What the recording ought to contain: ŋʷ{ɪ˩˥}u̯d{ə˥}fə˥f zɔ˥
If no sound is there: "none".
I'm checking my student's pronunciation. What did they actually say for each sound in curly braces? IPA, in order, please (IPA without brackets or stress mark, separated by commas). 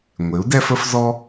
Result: ɪ˩˥, ɛ˥